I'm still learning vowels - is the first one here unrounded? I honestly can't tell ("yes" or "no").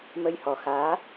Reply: yes